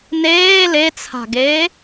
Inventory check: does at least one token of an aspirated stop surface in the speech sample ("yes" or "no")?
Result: yes